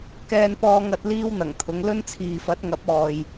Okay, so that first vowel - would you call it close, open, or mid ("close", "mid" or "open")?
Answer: mid